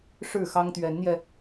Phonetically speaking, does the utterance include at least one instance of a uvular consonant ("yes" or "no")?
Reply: no